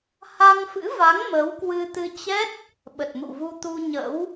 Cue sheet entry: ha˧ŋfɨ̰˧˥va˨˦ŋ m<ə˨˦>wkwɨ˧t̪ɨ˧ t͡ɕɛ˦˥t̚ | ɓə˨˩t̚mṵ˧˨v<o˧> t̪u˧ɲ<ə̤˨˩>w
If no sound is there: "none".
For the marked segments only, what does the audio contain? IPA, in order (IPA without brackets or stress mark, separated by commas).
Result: ə˨˦, u˧, ə̰˧˥